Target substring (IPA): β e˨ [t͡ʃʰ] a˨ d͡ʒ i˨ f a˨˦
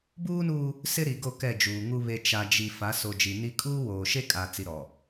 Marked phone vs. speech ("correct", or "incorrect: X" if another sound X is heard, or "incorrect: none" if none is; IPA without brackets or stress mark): incorrect: t͡ʃ